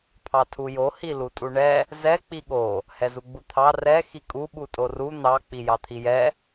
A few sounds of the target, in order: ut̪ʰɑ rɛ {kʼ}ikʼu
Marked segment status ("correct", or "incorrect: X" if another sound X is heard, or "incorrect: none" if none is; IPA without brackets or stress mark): incorrect: x